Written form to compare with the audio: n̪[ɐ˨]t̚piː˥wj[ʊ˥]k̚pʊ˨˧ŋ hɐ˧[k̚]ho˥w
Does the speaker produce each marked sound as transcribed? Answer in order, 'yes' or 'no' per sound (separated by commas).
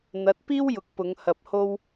no, no, no